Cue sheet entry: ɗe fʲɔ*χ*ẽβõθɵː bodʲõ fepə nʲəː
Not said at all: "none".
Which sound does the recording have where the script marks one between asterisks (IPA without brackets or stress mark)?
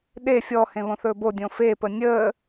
h